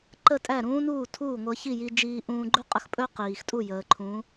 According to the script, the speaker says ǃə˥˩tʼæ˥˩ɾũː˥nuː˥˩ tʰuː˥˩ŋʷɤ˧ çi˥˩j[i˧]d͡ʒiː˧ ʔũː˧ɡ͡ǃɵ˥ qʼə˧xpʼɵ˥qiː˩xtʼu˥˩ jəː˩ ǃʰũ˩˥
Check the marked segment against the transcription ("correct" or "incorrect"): correct